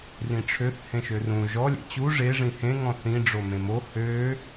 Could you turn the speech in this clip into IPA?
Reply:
r ĩ ʈ͡ʂʰ ø θ h ẽ ʃ ø r ũ ʒ ɔ lʲ ḛ t͡ɕ u ʐ e ʐ ĩ h ẽ ŋ ɔ̃ θ ĩ ɖ͡ʐ o m ẽ m o h ø

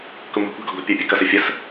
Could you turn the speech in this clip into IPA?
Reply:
k ʊ m ɔ̤ kʷ æ̤ ɡ ɔ ɡ ɔ̤ pʲ ə˞ pʲ ʊ k ʌ s ə fʲ ə s

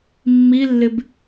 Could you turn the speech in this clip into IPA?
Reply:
mː i lː ɪ b

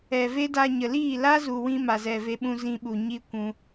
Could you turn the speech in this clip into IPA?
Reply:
ɛ˨ v e˦ d a˧ ɲ ə˨ l iː˦˨ l a˦ z u˨ w ĩ˦ m a˨ z ɛ˨ v e˧ ɓ ũ˧ z ĩ˧ ɓ u˨ ɲ i˧ kʷ ũ˧

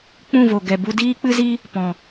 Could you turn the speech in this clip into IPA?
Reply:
k͡p ũ˦˨ v o˨ ɡ ɛ˨ b u˧ d iː˦ k͡p ɨ˦ z i˦ | p ɔ̃˨

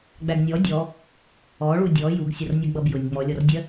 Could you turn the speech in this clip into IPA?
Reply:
ɡ͡b æ ɡ nʲ ɔ dʲ ɔ | ɔ ɭ u dʲ ɔ j u ɡ sʲ ʌ r nʲ ʌ ɡ͡b ʌ b j ʊ nʲ ŋ͡m ɔ lʲ ɔ r dʲ ɜ

